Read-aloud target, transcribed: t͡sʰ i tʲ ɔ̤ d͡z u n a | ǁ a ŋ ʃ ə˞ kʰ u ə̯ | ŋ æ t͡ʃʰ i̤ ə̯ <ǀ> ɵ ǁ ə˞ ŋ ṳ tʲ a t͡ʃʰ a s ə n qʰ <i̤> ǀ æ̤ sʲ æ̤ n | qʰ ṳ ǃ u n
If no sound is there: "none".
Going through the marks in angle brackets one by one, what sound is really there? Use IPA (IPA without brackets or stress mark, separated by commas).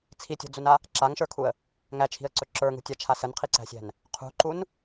ǀ, i